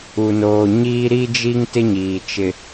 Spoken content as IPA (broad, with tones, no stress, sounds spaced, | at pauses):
u˨ n oː˨ ɲ iː˦ ɾ i˦ d͡ʒ i˦ ŋ t ɪ˦ ɲ iː˨ t͡ʃ ɪ˦